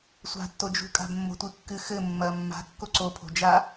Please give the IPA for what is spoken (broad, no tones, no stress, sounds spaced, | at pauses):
sʷ a̤ tː o d͡ʒ ṳ kʼ a̤ b mː o̤ tʷ ɨ kː ɨ x ɘ mː ɐ mː a̤ kː o ǀ o pʰ o̤ d͡ʒ a